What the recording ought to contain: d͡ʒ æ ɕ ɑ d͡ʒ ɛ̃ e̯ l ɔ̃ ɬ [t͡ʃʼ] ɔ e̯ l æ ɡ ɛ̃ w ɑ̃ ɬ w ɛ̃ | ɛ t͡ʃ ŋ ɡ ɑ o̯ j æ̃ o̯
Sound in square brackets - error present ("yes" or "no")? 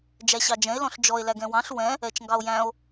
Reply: yes